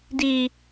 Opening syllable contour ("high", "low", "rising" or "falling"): high